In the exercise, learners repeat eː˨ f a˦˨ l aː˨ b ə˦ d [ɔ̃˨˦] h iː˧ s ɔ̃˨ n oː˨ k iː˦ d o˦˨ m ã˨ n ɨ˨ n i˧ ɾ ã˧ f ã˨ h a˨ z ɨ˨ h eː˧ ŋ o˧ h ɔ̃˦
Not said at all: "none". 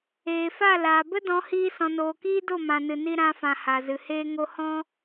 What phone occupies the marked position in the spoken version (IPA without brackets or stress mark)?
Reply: ɔ̃˨˦